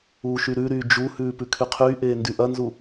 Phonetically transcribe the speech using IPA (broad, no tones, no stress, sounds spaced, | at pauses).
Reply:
uː ʃ y ɾ ʉ ɾ yː d͡ʒ u h ʉː p ʉ kʰ y qʰ yː ʔ eː n d y ʔ ɐ n z u